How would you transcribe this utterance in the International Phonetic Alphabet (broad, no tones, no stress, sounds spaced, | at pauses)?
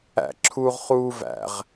æ̰ ǁʰ uː ʁ χ uː v æ̰ ʁ